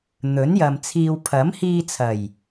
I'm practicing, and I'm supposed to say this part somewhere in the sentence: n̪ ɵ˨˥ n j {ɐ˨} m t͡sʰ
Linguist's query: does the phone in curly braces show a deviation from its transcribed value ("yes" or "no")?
no